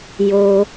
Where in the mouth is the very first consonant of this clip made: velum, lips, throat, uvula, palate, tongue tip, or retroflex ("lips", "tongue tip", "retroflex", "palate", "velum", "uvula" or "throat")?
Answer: palate